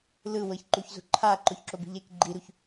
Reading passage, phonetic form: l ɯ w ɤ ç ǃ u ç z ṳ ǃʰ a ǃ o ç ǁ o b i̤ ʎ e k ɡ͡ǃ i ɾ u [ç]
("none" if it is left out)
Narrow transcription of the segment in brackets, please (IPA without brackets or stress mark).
ç